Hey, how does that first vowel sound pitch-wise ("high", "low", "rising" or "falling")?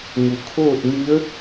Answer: low